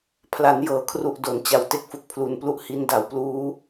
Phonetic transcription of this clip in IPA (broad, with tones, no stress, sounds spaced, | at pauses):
pʰ l a˩˦ n j ɤː˩˦ kʰ r u˨˩ ʔ d o˩˦ n t͡ɕ a˨˩ w t e˦˥ k̚ f u˨˩ k̚ pʰ l u˨˩ n p l u˦˥ ʔ h i˧ n d a˩˦ w p l uː˦˥